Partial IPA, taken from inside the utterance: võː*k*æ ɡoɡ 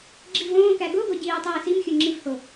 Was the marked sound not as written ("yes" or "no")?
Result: no